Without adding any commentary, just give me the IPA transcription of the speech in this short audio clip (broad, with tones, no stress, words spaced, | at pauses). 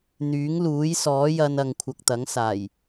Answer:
n̪yː˨˥ŋluː˨˥jsɔː˨˥jɐ˧n ɐ˨ŋkʷʰɐ˨k̚t̪ɐ˨˥ŋsaː˨˩j